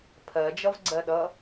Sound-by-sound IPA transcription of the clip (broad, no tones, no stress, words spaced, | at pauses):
pʰɜd͡ʒʌv ɡ͡ǀɜɗʌ